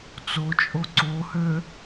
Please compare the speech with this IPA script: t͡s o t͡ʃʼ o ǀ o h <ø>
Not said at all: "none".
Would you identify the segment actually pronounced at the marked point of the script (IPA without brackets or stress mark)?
ø